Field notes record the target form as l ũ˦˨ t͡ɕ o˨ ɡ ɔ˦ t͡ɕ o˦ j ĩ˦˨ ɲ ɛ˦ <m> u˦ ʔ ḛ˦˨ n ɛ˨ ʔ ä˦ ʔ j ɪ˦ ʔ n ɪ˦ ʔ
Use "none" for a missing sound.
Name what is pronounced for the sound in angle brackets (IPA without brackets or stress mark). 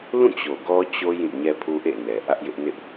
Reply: pʰ